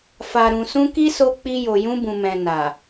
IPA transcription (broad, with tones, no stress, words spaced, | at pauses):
fa˨ɾũ˨sũ˧ ki˦so˧k͡pi˧jo˨ jũ˧bũ˨mɛ̃˨ na˨